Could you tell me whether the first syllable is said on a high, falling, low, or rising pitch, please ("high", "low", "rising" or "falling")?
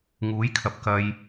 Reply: rising